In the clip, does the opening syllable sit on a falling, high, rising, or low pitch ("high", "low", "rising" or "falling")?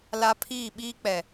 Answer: high